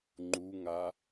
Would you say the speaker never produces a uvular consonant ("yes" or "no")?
yes